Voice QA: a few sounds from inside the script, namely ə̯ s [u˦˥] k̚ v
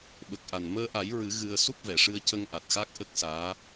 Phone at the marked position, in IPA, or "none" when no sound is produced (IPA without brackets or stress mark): u˦˥